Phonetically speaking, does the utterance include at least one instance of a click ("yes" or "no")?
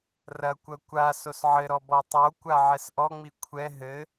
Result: no